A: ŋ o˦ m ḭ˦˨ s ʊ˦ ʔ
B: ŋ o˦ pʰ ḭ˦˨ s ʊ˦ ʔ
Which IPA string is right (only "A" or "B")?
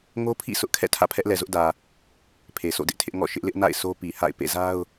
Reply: B